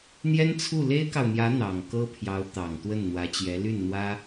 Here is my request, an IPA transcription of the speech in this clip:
n̪jɛ˥nt͡sʰu˥˩ le˥ɪ̯kɑ˨ʊ̯ n̪jä˧˥ n̪ɑ˨˩ŋkɤ˥pʰjɑ˧˥ʊ̯ t̪ɑ˨˩ŋt̪wə˥˩n n̪wä˧˥t͡ɕjɛ˧˥ ly˥˩nn̪wä˥

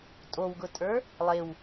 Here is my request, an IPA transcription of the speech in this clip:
tʼowɡʊtʼə˞ | lˠew

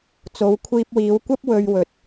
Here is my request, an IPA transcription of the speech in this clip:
t͡so˨˧wkʷʰiː˧p̚wiː˨˧wkʷɐ˥p̚ wɵ˧ɥwɵ˨˥t̚

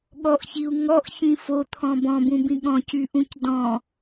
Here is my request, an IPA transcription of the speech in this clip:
ɠɔʔçiu̯ ŋɔʔçĩ fot̪ʰɔ̃ bɔ̃bũbĩ ɠɔ̃cyʔũc dɔ̃

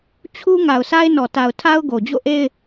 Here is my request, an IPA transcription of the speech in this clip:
t͡ɕʰu˦ ŋa˨ʊ̯sʰa˦ɪ̯nɔ˨ta˨ʊ̯ tʰa˦ʊ̯ɡo˨d͡ʑo̰˦˨ʔe˦ɪ̯

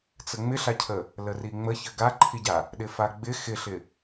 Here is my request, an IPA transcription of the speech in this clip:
t͡səŋ͡mɪɬacʰə | ləriŋ͡mə çəɡaǃʰiɟa | ɗɪfaɡ͡bɪ xɪɬɪ

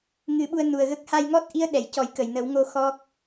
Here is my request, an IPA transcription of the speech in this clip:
ŋɨ˨˩˦ɓu˧ə̯ nu˨˩ə̯ɣə˦˥k̚ ha˧jŋɔ˦˥t̚ʔi˧˥ə̯ ɗɛ˨˩˨jcɔ˨˩˦j kə˨˩˨jnə˨˩˦wŋo˧ xɔ˦˥k̚

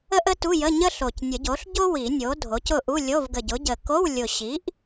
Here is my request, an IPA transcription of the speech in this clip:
ə˥ʔ ə˥tu˧˥˧jə˧˥˧ ɲə˥ɬo˨˩c nʲə˨˩˦ɟo˩˥ɬɟo˥ wi˨˩˦nʲo˩˥ dʱo˩˥cʊ˦˨ʔu˧˥˧ lʲo˧˥˧vɡə˨˩ɟʊ˩˥ɟə˨˩ ko˧˥˧wlʲʊ˨˩ɕi˩˥ʔ

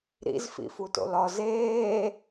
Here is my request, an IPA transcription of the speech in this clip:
ɾḭzfḭfuto̰l ɒz eː

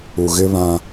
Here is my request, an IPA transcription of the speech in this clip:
u˨ɣɪ˦βã˦

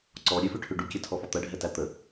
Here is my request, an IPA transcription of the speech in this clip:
ǀɔ ɾʲʉfʉʈʰʉ ɖukʲɛtʰɔfɔ t̪ɜɖʱɛtæ t̪ə

